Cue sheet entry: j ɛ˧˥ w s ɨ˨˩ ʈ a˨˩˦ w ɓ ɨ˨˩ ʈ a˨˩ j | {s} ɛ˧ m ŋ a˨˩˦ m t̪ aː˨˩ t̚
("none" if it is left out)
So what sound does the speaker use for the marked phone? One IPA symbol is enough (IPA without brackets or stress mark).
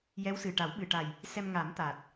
s